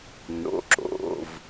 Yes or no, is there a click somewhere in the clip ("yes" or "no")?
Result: yes